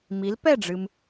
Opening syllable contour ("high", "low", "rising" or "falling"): rising